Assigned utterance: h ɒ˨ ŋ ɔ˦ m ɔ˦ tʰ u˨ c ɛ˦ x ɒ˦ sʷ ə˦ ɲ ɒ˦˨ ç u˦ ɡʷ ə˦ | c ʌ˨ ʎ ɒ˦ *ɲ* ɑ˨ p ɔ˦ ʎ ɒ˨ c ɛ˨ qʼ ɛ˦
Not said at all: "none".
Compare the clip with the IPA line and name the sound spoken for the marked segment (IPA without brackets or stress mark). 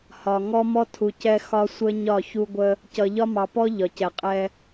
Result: m